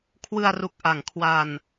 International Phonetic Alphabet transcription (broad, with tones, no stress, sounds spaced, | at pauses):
kʰ w ɯ˧ a̯ r u˨˩ k̚ ʔ a˩˦ ŋ kʰ w a˧ n